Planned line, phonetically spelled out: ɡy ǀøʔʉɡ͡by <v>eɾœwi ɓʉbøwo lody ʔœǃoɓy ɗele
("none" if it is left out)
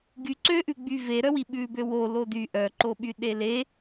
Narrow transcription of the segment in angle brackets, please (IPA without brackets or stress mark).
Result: v